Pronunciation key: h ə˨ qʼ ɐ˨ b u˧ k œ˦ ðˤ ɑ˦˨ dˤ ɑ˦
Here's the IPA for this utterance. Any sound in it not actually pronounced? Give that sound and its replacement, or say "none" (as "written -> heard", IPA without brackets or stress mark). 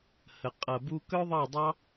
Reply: none